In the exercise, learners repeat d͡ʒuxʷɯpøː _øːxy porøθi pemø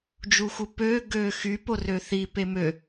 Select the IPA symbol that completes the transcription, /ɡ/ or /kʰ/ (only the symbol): ɡ